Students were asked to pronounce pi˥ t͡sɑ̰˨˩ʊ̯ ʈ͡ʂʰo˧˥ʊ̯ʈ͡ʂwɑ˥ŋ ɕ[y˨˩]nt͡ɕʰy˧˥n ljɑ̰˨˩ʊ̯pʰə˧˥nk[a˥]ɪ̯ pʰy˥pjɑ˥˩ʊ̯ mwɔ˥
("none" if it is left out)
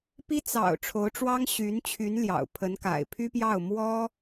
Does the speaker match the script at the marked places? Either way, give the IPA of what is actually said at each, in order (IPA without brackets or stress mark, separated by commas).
y˧˥, a̰˨˩